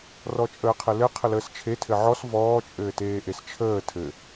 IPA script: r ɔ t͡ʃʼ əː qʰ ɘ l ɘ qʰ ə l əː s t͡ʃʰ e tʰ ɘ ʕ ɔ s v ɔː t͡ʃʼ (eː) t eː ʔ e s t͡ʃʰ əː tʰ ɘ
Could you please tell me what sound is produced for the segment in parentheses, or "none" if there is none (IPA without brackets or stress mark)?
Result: ɘː